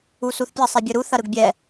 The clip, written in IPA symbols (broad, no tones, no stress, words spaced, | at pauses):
usuθpʲɐ sˤɛbʲɯɾu θɐɾɯɡbʲɛ